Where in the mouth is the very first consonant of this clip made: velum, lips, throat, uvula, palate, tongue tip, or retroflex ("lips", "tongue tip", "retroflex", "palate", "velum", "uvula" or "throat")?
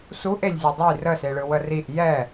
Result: tongue tip